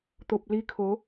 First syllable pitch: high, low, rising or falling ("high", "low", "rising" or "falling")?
low